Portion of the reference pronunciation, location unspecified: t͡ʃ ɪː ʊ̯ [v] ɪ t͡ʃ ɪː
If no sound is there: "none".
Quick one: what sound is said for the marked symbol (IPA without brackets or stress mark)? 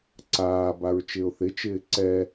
θ